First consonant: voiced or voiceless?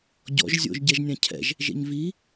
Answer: voiced